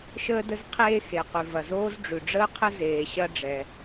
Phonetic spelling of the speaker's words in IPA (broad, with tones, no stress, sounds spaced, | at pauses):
ʃ əː˥ d ə˥ z qʰ eː˥ x e˩ q ʉ˩ v ɐ˩ z oː˥ z ɖ͡ʐ ʉ˩ ɖ͡ʐ əː˥ qʰ ə˥ z eː˩ ɕ ɐ˥ ɖ͡ʐ ɛ˩